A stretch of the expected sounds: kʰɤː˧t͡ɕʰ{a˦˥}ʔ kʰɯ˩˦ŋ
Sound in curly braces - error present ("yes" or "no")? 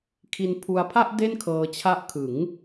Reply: no